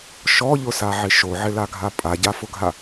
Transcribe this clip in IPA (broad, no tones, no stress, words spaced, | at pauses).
ʃɔʎʊsaʕɪ ʃoʕɪlaɡʱa pʼaɟafʊɡʱa